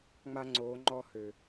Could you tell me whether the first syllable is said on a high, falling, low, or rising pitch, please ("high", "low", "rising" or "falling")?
high